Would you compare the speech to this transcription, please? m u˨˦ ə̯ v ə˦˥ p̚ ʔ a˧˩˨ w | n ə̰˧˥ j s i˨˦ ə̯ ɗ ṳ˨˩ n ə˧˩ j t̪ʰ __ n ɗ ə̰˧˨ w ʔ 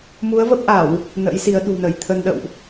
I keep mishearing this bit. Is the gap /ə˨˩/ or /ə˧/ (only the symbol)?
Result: ə˧